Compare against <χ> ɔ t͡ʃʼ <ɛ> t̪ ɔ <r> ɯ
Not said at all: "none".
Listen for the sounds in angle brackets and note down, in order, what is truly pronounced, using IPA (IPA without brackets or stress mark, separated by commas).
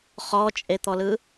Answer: χ, e, l